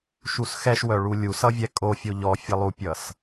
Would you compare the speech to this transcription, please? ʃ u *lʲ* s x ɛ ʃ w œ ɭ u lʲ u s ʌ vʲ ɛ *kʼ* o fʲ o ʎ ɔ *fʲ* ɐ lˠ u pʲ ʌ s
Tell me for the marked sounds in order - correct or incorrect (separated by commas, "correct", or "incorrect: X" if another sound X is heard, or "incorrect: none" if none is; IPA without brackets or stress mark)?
incorrect: none, correct, correct